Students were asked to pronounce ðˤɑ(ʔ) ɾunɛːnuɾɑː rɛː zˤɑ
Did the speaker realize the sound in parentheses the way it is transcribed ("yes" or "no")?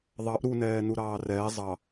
yes